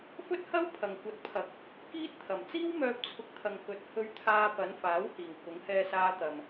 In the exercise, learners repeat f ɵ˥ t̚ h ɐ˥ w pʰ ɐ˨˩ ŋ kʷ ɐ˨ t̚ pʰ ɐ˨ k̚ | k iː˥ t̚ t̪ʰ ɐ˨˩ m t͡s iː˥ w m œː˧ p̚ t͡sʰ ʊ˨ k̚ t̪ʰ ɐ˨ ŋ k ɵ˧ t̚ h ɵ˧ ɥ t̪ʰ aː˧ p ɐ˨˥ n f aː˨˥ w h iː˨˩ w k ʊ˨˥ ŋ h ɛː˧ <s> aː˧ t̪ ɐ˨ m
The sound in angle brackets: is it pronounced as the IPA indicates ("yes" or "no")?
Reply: yes